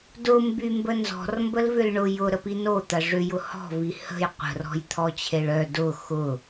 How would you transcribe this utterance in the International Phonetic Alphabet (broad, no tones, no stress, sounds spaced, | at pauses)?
d ʊ m b y m b ə n z ɔ̤ r m b ə l v ʏ l ɳ ʊ j ʊ ɾ ə p i n o t̪ ɐ ʐ ʏ j ʊ h ɔ̤ v i h ə̤ j qʷ ə̤ r ɔ̤ j t̪ʰ ɔ t͡ɕʰ e ɭ œ d ʊ x ʊ